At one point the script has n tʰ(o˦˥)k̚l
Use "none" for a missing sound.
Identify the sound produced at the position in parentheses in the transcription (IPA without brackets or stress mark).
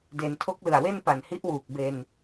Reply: o˦˥